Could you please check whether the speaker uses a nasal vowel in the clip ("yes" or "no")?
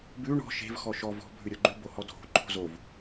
no